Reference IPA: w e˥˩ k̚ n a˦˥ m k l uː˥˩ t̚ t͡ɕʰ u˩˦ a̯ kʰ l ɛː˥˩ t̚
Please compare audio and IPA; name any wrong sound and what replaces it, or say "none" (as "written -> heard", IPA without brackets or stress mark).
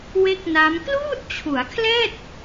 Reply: none